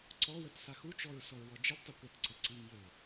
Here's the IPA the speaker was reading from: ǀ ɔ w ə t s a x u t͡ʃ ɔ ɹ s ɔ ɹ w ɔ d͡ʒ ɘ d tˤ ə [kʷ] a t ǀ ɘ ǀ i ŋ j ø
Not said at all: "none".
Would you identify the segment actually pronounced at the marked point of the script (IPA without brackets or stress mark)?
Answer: kʷ